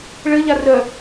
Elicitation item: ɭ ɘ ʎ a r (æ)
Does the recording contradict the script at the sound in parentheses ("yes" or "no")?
yes